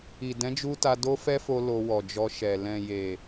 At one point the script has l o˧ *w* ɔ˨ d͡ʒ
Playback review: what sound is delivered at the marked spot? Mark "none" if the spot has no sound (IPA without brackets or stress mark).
w